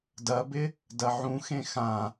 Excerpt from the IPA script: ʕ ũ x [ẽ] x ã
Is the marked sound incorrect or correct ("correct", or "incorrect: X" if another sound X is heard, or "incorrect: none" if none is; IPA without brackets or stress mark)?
correct